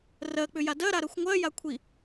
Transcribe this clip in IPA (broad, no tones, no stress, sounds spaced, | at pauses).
r ɜ k͡p ʏ j a d ɜ ɾ a ɾ ɜ xʷ ŋʷ ɜ j a kʷʰ i